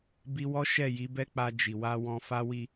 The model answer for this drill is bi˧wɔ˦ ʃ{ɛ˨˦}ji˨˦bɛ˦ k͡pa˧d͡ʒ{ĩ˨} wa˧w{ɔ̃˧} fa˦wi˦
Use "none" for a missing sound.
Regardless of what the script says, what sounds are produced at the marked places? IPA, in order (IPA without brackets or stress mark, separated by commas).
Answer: ɛ˦˨, i˨, ɔ̃˧